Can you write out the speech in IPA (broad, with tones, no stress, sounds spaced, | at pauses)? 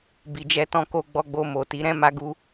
b i˨ d͡ʒ ɛ˧ t ɔ̃˧ k o˧ ɡ͡b ɔ˧ ɡ͡b o˧ m o˨ t i˨˦ ɾ ɛ̃˦ m a˦ ɡ u˦